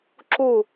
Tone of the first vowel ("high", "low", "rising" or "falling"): falling